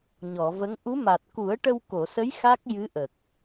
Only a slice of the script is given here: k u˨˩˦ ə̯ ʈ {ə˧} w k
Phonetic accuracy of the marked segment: correct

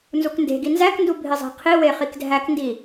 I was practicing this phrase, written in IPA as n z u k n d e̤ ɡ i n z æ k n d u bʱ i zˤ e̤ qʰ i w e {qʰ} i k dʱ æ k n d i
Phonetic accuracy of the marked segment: incorrect: χ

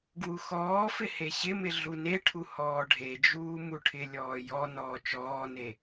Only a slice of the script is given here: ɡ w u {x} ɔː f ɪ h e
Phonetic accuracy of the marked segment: correct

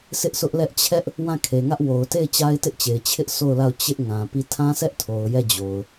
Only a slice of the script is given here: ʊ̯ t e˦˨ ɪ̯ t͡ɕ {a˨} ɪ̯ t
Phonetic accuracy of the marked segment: incorrect: a˦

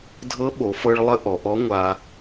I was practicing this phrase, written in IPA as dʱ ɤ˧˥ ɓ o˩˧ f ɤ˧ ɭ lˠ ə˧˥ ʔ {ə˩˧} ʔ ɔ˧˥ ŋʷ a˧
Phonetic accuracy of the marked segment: incorrect: ɔ˩˧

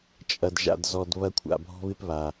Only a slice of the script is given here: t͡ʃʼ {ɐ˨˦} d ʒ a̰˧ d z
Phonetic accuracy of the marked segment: incorrect: ɐ˧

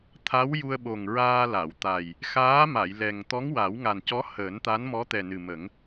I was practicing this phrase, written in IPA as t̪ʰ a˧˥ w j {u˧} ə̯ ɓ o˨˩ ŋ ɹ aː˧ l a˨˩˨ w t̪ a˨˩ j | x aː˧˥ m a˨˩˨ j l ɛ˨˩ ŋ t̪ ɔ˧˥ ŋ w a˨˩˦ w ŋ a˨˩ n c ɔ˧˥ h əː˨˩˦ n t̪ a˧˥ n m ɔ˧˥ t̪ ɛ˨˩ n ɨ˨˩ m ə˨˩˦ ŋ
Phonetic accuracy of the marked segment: correct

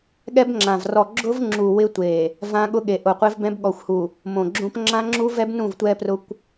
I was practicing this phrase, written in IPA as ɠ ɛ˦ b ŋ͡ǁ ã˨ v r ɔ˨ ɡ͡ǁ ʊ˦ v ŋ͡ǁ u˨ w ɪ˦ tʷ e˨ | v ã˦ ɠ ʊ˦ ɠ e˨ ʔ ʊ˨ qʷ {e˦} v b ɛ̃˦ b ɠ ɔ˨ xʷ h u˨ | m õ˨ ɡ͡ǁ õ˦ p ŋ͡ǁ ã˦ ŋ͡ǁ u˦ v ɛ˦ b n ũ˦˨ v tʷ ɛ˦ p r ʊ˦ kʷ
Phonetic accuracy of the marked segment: correct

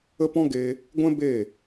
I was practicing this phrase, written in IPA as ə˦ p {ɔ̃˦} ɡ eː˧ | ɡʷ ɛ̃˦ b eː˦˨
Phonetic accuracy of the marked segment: correct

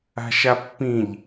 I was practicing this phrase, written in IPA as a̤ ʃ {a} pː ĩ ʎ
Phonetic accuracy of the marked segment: correct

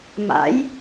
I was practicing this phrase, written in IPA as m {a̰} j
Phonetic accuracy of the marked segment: correct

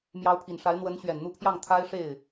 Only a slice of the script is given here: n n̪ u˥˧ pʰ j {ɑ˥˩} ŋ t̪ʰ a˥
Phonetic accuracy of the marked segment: correct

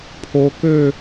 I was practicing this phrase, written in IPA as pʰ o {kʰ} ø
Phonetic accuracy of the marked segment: incorrect: k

